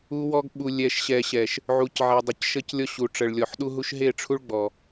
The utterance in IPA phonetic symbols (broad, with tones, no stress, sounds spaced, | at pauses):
u˦ w ɔ˦ ɡ ɓ u˨ lʲ ɛ˨ ʃ ɕ ɛ˨ ɕ ɛ˨ ʃ | ʕ u˨ c ʕ ɛ˨ dˤ ə˨ c ʃ ə˦ c lʲ ɔ˦ ɕ u˨ ʈ͡ʂ ə˨ ɭ lʲ ɔ˨ ħ ɗ u˦ ɦ u˦ ʃ ɦ e˦˨ ʈ͡ʂʰ u˦ ɭ ɡ͡b ɔ˨